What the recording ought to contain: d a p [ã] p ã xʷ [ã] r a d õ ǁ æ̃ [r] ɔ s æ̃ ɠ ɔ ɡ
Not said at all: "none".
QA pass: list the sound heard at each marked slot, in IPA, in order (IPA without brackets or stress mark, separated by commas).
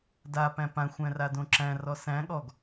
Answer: æ̃, æ̃, r